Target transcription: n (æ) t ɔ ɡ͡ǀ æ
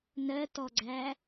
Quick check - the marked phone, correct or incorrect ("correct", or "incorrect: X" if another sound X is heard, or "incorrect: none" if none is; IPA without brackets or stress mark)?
incorrect: ɜ